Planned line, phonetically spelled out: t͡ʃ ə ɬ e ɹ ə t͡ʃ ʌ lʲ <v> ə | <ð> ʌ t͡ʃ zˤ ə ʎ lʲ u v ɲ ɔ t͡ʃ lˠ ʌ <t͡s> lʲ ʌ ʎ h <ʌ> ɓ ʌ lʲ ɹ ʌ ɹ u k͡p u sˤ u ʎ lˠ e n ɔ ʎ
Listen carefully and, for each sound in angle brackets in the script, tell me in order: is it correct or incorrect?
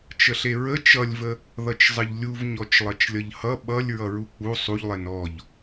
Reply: correct, correct, incorrect: t͡ʃ, correct

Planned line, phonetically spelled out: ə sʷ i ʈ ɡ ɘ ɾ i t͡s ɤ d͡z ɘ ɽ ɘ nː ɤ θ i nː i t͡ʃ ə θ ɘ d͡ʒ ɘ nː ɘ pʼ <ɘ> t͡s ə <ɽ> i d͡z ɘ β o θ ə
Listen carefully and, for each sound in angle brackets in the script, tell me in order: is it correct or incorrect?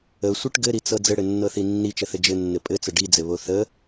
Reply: correct, incorrect: ɖ

